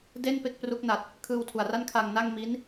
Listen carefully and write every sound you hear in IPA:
d e˥˩ n p e˥˩ k̚ p r u˦˥ k̚ n a˨˩ t̚ | kʰ ɯː˧ w tʰ u˨˩ a̯ r a˥˩ n kʰ a˧ ŋ n a˥˩ ŋ m i˦˥ n

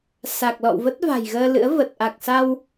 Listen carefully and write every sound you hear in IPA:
s a˨˩ k̚ l ɔ̰˧˨ w v ə˦˥ t̚ v a̤˨˩ j ɣ əː˧ l ɨ̰˧˥ ə̯ v ə˨˩ t̚ ʔ a˨˩ k̚ s a˧ w

